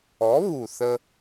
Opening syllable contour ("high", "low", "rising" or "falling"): rising